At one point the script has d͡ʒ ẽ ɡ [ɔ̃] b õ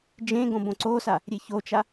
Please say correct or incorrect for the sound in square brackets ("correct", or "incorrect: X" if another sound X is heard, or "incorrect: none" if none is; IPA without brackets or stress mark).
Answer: incorrect: õ